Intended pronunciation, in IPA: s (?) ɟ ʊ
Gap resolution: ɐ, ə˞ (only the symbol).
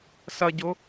ɐ